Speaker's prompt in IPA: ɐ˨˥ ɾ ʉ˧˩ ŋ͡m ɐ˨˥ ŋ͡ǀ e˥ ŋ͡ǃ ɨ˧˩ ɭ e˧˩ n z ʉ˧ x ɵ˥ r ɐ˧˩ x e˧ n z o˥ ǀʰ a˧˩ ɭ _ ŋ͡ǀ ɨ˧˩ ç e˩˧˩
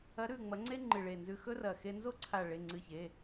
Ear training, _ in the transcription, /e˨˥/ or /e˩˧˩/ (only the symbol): e˩˧˩